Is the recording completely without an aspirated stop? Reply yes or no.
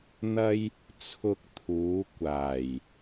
no